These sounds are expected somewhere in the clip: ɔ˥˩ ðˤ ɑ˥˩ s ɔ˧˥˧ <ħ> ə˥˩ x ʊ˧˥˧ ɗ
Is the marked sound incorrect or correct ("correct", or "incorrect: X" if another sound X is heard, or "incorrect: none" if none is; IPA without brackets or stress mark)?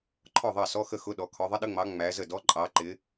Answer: incorrect: x